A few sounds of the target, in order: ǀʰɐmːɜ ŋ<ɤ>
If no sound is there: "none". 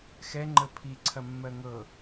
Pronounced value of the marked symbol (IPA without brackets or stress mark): ɤ